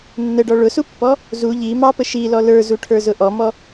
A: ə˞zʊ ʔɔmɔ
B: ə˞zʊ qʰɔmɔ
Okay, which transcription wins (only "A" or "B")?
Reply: A